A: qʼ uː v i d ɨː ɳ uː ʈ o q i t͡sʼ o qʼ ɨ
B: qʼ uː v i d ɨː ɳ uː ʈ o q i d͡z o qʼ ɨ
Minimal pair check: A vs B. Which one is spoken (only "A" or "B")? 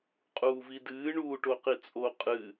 A